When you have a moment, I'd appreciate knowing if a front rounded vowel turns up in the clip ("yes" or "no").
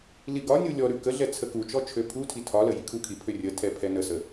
yes